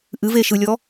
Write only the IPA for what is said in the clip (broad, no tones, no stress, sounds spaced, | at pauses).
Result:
ʔ ɨ v e ʃ ɯ lʲ ɔ